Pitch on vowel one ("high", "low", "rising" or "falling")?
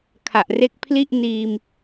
low